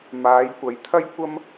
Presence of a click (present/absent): absent